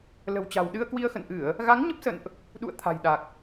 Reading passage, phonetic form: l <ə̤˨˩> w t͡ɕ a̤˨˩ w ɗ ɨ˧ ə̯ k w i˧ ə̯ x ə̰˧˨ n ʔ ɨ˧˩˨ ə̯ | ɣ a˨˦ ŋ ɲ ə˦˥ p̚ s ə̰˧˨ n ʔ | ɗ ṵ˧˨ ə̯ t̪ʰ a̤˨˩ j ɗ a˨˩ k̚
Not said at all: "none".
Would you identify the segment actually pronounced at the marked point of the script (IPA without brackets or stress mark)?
ə̤˨˩